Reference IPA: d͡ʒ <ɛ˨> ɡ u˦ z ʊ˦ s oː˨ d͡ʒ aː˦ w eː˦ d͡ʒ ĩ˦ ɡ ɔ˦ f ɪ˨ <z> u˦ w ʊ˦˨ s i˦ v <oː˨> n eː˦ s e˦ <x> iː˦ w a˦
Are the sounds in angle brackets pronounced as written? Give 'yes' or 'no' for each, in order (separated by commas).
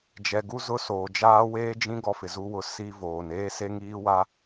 yes, yes, yes, no